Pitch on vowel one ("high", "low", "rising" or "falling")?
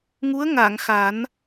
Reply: rising